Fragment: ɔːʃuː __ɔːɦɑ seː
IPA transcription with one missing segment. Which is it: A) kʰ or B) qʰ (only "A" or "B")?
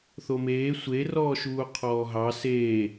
B